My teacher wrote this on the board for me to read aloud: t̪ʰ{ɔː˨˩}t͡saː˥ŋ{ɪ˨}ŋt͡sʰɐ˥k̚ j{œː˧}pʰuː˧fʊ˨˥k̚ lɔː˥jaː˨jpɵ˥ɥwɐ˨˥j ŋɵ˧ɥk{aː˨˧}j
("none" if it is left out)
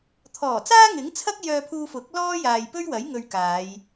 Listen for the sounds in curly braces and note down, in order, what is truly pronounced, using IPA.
ɔː˨˩, ɪ˨˥, œː˧, aː˨˧

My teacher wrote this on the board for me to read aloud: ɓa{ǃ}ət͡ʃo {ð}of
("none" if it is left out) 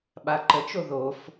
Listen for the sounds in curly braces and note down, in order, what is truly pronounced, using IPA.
ǃ, ð

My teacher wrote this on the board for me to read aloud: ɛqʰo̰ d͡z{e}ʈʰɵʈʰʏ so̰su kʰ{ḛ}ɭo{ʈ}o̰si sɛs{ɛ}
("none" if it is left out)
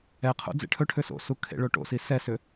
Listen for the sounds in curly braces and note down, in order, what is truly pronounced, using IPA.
ḛ, ḛ, ʈ, ʏ

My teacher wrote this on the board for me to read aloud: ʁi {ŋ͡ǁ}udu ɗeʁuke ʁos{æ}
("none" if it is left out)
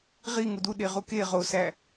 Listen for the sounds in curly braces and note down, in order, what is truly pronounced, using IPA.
ŋ, æ

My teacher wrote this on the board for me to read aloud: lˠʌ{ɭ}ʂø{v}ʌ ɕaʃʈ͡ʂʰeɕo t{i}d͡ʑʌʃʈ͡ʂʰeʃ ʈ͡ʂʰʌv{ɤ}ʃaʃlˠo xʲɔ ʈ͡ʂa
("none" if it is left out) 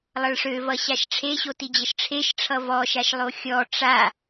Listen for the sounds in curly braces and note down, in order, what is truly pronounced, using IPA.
ɭ, v, i, ɔ

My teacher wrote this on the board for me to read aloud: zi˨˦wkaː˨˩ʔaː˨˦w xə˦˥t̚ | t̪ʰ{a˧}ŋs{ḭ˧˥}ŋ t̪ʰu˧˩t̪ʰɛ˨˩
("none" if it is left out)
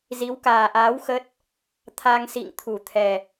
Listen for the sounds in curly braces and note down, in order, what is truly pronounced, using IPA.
a˧, ḭ˧˨

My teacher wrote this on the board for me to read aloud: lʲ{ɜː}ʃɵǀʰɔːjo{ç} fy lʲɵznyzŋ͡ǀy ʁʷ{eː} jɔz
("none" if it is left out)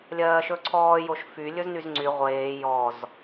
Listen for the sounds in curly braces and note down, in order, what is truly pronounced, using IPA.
ɜː, ʃ, eː

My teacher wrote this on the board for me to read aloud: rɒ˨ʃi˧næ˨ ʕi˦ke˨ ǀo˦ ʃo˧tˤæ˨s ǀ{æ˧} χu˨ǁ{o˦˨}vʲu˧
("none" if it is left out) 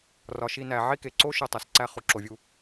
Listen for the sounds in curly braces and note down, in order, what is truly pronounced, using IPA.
æ˧, o˨

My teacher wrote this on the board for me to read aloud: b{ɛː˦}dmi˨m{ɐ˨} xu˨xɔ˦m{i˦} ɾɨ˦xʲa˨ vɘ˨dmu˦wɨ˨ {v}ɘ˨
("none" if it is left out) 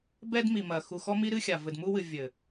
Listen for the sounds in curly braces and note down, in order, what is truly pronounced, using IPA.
ɛ˦, ɐ˨, i˦, vʲ

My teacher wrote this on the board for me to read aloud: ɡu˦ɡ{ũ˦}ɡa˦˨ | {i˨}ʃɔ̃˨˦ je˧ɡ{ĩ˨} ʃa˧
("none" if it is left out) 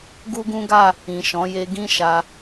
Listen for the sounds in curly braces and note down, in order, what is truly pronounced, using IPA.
ũ˦, ĩ˨, ĩ˦

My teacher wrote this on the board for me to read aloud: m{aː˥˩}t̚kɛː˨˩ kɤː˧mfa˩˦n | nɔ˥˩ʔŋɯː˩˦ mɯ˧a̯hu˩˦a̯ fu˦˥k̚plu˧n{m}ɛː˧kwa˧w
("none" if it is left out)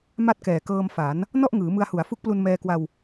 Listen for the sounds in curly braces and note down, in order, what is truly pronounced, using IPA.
a˥˩, m

